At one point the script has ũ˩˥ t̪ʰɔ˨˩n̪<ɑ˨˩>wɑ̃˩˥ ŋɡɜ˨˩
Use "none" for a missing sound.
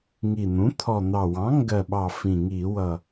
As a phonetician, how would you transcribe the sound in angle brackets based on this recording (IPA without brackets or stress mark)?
ɑ˨˩